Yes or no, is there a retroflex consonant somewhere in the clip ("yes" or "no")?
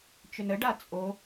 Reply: yes